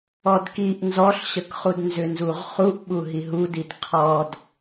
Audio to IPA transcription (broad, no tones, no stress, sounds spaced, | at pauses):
ɔ d k i ʔ n z ɔ ɬ ɕ ə k χ u d n z ʏ n z u ʁ χ u ʔ ɓ u ɦ i ɦ u d i d qʰ ɔ d